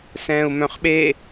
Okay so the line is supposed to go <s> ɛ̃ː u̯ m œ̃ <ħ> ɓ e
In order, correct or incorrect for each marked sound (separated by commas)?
correct, incorrect